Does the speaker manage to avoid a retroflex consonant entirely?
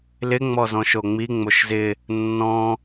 yes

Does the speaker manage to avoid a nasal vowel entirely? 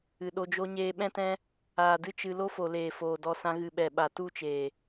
no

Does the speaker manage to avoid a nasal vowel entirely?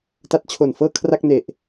yes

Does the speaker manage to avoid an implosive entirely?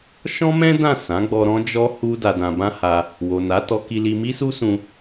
yes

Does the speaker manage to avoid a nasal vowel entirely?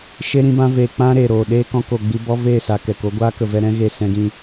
no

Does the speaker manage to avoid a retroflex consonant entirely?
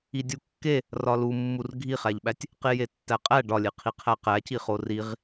no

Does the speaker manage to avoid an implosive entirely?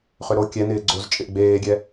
yes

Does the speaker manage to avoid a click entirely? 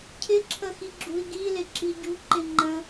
no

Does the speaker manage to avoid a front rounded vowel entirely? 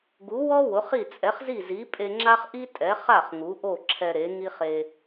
yes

